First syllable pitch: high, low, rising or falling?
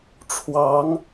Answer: rising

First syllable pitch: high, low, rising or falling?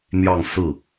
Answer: falling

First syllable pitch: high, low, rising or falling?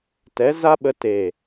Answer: rising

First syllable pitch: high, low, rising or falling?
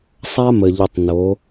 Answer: high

